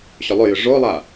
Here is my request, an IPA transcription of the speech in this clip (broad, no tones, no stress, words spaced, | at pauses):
ɕʏlˠʏjʏ ʐolˠa